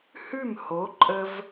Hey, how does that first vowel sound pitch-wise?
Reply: falling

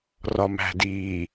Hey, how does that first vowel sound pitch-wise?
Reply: low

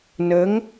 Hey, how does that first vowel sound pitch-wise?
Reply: rising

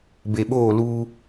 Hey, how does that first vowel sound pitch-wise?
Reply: low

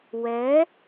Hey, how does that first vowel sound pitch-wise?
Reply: rising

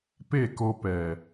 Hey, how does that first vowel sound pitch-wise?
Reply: falling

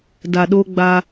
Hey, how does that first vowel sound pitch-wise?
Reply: low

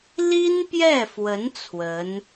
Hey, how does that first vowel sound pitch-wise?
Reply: high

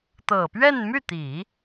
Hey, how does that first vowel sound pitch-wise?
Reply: low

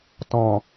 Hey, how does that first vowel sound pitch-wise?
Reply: low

